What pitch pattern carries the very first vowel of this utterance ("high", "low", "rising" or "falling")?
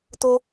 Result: high